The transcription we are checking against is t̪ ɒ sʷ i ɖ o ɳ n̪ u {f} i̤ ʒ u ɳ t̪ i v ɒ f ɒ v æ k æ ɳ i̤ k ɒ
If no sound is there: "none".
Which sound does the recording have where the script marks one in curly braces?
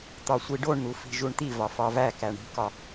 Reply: f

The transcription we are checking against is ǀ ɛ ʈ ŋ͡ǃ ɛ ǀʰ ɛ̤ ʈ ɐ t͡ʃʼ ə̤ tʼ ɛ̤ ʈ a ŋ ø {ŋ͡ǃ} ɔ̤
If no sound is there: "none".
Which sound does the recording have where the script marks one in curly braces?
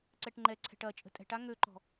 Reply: ǃ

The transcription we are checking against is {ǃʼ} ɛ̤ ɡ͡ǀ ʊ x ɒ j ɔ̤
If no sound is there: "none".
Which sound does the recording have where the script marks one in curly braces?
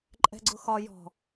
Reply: ǃʼ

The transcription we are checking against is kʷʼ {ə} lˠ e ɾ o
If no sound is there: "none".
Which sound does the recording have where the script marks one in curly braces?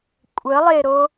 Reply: ə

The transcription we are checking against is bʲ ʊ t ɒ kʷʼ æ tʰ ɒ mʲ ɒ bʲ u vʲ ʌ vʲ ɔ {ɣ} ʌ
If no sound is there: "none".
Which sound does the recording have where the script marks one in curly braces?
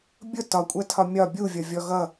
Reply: ɣ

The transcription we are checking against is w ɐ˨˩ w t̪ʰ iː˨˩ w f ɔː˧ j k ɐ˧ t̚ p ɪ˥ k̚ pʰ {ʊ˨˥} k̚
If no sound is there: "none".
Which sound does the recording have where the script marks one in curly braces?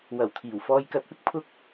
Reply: ʊ˥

